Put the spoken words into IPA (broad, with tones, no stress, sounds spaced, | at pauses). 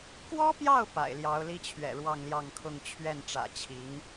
k w ɔ˥ p j ɑ˥˩ ʊ̯ p a̰˨˩ ɪ̯ l j ɑ˧˥ ʊ̯ l i˥ t͡ɕʰ ɥ ɛ̰˨˩ ɻ w ɑ˥˧ ŋ l j ɑ˥˧ ŋ kʰ ʊ˥˧ ŋ t͡ɕʰ ɥ ɛ˥˩ n ʈ͡ʂ ä̰˨˩ t͡ɕʰ i˧˥ ŋ